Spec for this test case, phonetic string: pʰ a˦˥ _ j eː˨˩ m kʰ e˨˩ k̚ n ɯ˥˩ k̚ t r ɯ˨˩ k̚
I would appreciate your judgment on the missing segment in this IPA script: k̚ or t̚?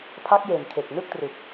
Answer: k̚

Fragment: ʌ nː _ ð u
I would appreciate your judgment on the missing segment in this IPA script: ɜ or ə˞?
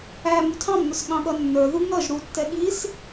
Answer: ə˞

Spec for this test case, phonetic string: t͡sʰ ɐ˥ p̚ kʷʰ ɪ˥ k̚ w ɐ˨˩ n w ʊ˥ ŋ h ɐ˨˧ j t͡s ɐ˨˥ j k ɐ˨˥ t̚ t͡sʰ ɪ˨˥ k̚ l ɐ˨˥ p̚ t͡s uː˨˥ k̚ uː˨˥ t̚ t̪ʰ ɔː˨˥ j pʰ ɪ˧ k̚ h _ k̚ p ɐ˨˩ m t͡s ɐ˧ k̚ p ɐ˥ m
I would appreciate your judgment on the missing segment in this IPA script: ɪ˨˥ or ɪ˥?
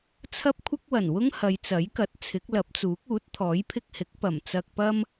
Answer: ɪ˨˥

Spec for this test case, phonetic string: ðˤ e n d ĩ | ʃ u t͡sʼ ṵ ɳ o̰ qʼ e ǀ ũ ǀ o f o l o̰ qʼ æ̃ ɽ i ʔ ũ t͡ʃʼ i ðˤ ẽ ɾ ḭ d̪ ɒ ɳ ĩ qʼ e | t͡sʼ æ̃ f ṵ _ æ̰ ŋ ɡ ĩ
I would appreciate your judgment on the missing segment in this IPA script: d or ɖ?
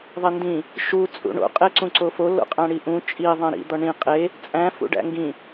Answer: ɖ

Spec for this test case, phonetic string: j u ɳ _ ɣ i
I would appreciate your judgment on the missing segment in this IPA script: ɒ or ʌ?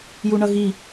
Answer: ʌ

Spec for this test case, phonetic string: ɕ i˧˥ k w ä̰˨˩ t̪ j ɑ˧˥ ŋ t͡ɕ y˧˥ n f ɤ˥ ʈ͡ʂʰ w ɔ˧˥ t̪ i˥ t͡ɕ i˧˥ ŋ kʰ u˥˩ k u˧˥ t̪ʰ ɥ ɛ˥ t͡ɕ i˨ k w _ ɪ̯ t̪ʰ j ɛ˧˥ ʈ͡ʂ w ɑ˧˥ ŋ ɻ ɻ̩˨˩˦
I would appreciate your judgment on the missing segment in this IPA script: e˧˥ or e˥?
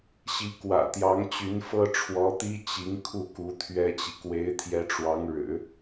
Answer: e˧˥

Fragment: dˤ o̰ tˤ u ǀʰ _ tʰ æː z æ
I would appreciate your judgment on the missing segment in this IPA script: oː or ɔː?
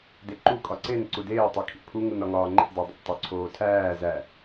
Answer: oː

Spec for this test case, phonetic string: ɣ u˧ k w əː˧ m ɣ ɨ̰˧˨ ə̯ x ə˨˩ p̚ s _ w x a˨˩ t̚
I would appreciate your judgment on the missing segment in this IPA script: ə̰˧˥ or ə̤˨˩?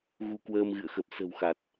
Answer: ə̤˨˩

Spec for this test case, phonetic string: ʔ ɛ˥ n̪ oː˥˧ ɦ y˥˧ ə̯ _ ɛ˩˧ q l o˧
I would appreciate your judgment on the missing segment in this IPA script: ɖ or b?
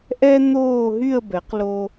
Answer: b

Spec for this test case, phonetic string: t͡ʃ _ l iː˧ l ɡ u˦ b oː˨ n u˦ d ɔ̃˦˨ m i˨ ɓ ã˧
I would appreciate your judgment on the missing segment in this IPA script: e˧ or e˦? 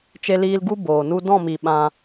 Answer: e˧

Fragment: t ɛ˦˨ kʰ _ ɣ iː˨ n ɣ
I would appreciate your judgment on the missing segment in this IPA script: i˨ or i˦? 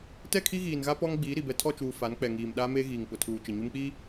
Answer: i˦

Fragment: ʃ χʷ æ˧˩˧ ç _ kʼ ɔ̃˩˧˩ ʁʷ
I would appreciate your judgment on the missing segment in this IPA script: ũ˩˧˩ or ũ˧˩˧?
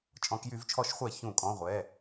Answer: ũ˧˩˧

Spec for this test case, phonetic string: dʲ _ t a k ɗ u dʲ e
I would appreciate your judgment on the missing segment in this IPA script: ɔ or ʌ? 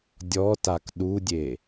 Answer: ɔ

